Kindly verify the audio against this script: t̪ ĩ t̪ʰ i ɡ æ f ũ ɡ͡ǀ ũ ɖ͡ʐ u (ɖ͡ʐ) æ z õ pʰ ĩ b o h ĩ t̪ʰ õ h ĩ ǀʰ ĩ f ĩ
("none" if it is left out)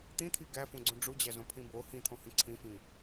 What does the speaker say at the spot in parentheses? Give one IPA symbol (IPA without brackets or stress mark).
d͡ʑ